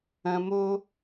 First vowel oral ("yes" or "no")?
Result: no